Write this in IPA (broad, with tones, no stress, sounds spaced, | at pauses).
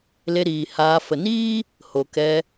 l e˧ ɾ iː˨ h aː˧ f ə˨ n iː˦ | h o˨ k ɛ˧